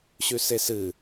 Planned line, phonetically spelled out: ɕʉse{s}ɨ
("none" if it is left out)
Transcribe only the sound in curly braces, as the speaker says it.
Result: s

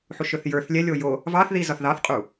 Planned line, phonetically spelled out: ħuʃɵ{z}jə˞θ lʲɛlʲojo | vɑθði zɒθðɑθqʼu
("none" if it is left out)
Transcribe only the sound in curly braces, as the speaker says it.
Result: θ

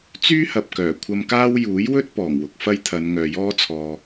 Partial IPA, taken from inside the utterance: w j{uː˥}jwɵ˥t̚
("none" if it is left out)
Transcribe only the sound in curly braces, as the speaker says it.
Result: uː˨˥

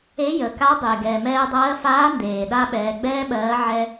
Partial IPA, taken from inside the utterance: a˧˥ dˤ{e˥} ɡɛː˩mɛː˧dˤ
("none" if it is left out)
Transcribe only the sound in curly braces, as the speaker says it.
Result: e˩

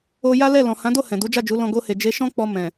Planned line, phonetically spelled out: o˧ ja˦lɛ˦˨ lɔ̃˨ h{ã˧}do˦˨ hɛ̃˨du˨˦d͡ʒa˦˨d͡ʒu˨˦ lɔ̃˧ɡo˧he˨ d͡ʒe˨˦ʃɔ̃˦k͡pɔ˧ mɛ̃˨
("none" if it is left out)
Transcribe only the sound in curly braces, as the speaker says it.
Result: ã˨˦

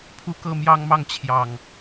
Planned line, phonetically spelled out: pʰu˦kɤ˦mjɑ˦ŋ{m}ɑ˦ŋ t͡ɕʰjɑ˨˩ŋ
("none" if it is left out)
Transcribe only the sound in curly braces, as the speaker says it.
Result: m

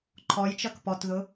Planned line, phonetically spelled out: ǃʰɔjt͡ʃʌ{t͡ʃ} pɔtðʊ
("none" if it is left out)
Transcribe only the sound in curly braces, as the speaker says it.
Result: k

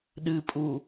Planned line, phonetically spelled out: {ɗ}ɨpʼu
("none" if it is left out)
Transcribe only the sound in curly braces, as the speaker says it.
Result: ɗ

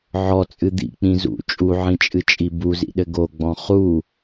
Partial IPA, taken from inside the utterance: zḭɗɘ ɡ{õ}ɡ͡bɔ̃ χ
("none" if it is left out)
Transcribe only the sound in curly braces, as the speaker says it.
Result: o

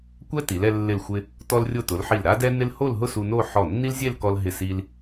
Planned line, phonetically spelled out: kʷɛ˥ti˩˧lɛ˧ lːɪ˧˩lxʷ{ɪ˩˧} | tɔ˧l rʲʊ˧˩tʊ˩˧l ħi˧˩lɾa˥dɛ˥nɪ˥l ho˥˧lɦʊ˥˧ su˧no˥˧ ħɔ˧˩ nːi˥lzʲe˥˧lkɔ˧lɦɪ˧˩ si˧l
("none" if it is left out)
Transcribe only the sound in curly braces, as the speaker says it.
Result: ɪ˧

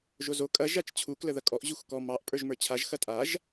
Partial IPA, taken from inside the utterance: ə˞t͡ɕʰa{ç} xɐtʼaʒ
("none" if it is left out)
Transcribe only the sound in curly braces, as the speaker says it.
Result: ʒ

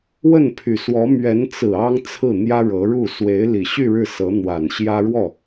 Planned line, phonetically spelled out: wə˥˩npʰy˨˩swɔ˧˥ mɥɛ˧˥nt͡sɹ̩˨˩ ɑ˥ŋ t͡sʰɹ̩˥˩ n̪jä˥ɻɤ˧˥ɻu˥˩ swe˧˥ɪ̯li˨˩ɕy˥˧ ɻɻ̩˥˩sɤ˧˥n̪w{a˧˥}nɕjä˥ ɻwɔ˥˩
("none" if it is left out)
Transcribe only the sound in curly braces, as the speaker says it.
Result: a˨˩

